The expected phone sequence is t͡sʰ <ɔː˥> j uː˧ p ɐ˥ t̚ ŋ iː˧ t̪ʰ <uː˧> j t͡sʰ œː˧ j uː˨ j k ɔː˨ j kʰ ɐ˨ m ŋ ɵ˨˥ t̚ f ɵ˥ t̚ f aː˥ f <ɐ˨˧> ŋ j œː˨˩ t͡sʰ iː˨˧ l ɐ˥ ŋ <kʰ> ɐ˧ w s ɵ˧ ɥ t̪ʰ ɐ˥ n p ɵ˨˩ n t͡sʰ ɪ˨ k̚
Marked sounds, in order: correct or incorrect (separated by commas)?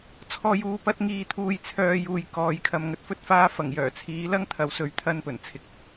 incorrect, correct, incorrect, incorrect